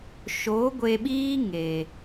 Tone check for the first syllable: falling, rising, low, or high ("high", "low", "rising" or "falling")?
rising